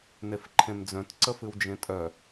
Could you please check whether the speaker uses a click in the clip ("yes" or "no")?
yes